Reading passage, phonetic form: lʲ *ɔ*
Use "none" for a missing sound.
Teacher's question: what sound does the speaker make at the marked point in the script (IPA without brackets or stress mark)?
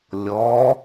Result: ɔ